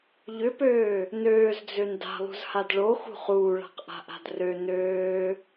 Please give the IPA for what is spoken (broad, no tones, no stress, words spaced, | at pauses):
ʎʏpøː | nøːzd͡zøn da̤lˠṳzhad ɭoxṳ χuːɭa̤qʔa̤ʔa̤d rø nøː